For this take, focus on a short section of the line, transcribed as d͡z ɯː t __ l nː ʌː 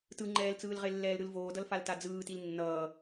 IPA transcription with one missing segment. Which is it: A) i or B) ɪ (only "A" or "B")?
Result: A